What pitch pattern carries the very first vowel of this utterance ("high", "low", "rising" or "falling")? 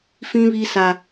high